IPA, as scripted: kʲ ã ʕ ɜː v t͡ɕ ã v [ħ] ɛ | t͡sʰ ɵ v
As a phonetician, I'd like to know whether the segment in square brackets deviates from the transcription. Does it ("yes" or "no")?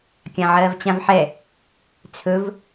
no